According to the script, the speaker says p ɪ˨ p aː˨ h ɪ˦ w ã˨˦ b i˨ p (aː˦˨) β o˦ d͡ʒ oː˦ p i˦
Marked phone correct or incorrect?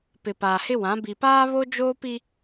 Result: incorrect